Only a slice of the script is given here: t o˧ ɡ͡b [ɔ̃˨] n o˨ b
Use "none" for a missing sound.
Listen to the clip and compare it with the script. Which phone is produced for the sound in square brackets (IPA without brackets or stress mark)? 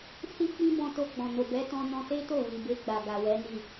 ɔ̃˨